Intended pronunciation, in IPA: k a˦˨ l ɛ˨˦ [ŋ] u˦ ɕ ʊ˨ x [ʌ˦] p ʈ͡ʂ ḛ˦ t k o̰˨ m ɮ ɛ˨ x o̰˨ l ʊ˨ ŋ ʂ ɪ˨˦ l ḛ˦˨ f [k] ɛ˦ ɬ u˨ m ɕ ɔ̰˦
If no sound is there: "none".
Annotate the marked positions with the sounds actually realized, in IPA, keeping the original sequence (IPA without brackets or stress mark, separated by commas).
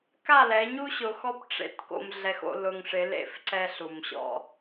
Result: ɲ, ɔ˦, ǀ